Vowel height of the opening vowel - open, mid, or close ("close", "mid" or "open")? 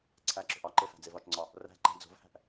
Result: open